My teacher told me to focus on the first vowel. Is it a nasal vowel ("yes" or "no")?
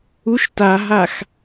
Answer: no